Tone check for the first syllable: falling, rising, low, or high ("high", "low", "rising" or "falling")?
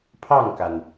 falling